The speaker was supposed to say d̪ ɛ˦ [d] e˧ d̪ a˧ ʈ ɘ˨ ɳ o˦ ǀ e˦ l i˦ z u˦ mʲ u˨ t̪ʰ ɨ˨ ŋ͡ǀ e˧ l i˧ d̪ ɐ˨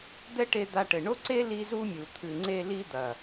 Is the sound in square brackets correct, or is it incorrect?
incorrect